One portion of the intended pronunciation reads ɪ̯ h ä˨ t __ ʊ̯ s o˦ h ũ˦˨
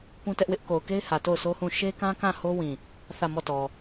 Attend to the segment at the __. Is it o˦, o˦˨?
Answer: o˦˨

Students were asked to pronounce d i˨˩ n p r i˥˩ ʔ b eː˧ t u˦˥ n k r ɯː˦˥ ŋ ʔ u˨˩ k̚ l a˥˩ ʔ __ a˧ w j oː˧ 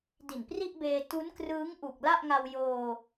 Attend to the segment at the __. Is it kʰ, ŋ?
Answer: ŋ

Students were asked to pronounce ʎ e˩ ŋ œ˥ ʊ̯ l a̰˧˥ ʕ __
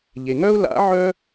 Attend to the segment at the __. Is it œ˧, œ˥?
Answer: œ˥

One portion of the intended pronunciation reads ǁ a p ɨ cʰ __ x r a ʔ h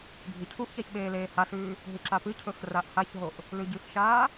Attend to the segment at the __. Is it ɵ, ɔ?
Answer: ɵ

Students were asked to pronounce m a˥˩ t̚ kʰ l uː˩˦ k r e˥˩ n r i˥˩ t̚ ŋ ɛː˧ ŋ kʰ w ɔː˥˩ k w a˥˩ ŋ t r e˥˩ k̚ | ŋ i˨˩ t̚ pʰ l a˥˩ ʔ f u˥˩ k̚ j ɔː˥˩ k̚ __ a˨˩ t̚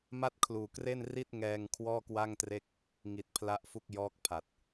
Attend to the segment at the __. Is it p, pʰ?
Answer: pʰ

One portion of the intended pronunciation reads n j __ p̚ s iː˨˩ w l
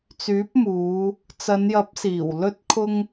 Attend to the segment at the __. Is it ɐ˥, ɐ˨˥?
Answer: ɐ˨˥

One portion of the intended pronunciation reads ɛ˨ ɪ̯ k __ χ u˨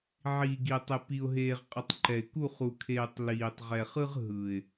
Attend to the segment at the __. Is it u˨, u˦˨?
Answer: u˦˨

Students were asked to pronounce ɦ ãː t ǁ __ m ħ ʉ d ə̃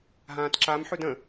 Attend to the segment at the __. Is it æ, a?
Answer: a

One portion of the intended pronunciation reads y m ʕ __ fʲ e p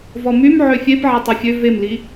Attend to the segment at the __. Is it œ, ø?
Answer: ø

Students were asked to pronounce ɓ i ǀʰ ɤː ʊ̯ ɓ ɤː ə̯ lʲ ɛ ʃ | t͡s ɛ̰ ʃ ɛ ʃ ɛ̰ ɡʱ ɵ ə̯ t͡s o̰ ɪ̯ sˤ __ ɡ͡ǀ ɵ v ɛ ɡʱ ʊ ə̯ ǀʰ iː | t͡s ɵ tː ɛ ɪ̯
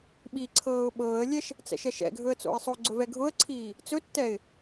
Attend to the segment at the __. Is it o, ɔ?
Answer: o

